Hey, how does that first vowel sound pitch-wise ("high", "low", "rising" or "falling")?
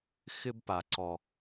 high